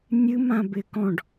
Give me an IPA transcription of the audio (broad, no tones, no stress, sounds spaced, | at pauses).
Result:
nʲ ɨ m ã b ɪ k ɔ̃ ɖ